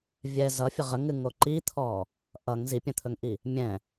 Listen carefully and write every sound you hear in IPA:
vʲɛ zʌfʲə ʁəŋɨŋo ǃit̪ʰɔ | ʔʌŋ zipʲə̃t̪ʰɵŋʔi | mʲɛ̃

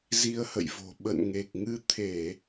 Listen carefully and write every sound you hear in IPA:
zi˧ə̯hə̰˧˨jvo̤˨˩ ɓə̰˧˨nŋe˨˩k̚ŋɨ˧ t̪ʰe˧˩˨

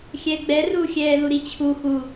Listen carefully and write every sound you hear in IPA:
xʲɛɡ͡bɛru xʲɛːðuɾit͡ɕʰu xu

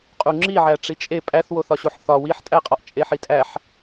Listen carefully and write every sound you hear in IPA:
qʼuŋ͡ǁiʕæ ʈ͡ʂit͡ʃʼe pʼæθwoθɒɕoħ θɒ wiħtʼæqʼɒʔ t͡ʃʼeħitʼæħ

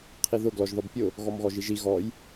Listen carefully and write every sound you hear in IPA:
qʰiðʊ ɡlɔʒðɔbpʲʊ | ɣɔmɣɔʒiʒi ɣɔj

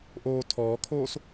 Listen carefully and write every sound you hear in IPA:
ʔoːtʰɔːkʰoːs

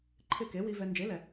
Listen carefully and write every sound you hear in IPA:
ǃʰɪ˥˩ ke˩˥wi˧ vɛ˧ nd͡ʒe˩˥lɛ˩

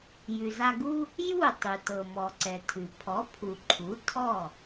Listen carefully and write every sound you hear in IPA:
jʉ˩za˧ɡu˥ | ju˥˩tˤʉ˩tɤ˩ mɔ˩ǀɛ˩tʰʉ˩ pʰɔ˩˥pʰu˩ ǃʰu˩˥tʰɔ˥˩

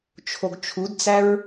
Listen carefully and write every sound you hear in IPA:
t͡ʃʰoɡt͡ʃʰudt͡sæɹ

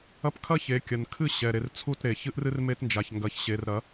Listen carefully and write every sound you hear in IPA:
ɐ˦p kʰɐ˦ çe˨˦ kʲɐ˨nkʰɨ˦˨ ɕɛ˨ɾe˨rt͡sʰu˦˨tɾe˨ çɨ˦ʔrɨ˦rme˦tnd͡ʒa˨ç ŋɡɐ˨çɕe˨rɾɐ˨˦

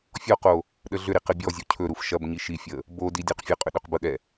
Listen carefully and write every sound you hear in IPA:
fʲɔqo | ɗəɮʏɾi qɘbʲɔzʲo cʰɵɾuf ʃɐbɲi ʃifʲə | bodi dʲoqfʲəqʼʏ ɗɵqbəɠɛ

